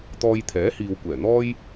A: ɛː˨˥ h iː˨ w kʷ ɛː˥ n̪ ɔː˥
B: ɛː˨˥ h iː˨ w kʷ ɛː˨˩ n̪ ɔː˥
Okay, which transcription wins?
B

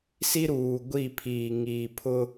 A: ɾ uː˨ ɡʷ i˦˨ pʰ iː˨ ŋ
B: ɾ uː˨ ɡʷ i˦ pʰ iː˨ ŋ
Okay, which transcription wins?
A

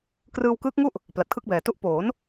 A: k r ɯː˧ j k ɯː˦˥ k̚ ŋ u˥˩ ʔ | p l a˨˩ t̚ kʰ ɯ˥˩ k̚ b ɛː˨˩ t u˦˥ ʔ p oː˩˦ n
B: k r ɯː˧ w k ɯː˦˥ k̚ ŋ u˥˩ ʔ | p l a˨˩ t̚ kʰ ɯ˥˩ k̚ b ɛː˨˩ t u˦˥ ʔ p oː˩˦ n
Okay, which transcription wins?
B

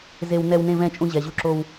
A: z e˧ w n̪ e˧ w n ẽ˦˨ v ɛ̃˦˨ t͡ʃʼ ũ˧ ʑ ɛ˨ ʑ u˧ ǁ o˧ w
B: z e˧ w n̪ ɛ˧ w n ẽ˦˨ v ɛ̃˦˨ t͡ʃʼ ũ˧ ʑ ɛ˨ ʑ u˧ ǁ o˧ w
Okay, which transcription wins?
B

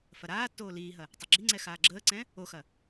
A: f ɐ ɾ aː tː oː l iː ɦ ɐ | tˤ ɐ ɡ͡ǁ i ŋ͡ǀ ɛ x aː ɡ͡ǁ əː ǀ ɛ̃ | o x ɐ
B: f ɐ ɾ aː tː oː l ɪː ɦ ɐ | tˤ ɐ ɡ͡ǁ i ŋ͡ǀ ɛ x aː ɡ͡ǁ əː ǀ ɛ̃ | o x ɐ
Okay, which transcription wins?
A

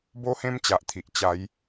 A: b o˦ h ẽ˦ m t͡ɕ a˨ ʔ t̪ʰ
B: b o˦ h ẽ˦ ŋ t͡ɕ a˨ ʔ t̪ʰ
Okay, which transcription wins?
A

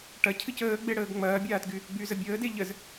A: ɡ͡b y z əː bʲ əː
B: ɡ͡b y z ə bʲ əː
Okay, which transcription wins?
B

